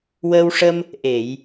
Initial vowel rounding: unrounded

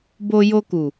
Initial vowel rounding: rounded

